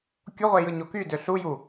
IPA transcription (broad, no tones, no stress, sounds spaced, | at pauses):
kʲ o ʁʷ e j ɯ ɲ o k y d ø ɬ u j u